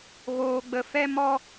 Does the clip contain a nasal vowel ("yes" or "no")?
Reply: no